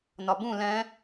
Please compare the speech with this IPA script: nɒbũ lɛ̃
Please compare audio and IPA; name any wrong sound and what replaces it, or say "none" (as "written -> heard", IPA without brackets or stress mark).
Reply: none